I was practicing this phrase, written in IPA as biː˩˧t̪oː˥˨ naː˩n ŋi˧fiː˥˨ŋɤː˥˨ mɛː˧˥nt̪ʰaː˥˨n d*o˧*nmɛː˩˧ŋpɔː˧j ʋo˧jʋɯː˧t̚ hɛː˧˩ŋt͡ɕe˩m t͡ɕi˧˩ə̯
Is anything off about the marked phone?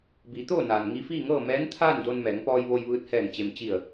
no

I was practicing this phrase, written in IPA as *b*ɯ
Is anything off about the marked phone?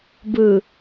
no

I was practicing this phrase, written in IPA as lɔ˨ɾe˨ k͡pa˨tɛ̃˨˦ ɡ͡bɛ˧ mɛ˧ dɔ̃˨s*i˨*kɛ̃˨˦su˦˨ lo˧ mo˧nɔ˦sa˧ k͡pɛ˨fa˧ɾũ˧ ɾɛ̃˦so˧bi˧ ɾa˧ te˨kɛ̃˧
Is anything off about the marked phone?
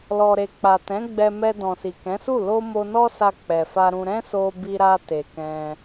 no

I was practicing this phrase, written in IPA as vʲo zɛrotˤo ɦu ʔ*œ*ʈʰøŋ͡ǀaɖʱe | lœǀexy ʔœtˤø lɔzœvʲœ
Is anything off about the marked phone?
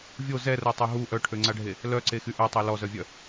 no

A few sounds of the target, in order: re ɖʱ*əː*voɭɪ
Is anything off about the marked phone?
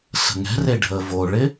no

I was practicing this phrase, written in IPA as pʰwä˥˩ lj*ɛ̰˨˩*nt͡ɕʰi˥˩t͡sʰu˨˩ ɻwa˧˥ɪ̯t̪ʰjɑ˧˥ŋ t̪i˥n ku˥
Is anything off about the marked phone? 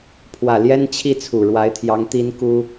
yes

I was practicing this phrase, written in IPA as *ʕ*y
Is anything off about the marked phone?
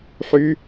yes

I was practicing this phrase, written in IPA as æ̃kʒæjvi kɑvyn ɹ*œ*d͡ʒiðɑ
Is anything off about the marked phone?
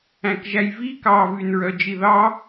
no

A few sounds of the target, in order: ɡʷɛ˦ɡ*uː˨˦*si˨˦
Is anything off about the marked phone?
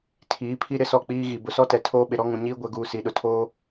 yes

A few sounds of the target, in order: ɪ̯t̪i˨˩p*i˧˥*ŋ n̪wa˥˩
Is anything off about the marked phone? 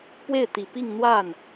yes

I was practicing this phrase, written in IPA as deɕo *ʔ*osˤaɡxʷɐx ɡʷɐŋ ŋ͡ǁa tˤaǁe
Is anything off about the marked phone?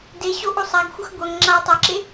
no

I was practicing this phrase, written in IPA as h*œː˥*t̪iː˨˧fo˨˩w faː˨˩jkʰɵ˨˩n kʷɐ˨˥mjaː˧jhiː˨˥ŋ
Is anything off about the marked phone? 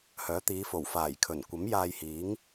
yes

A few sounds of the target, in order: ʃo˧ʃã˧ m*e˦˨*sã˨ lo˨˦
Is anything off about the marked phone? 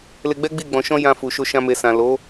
yes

